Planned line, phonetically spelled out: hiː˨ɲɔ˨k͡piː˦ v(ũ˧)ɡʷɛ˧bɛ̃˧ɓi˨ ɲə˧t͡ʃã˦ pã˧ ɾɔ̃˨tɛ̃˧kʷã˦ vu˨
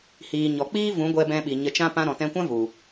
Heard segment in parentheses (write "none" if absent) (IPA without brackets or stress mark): ũ˨˦